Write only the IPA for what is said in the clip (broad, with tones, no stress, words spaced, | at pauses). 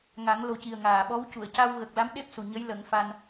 ŋa˨˩˦ŋlo˨˩˦ ci˨˩ə̯ŋaː˨˩ɓɔ˧˥w cu˨˩˨ə̯ca˧wɣə˨˩k̚ la˧˥mɗe˦˥p̚su˨˩ ɲə˧˥jlə˨˩˦ŋ fa˧n